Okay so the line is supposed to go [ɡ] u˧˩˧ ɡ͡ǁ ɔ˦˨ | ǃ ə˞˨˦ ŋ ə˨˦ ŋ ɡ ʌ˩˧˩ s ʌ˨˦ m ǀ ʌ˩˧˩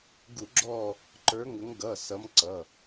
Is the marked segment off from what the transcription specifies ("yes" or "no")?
no